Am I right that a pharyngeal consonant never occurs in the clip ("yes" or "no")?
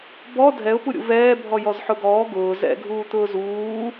no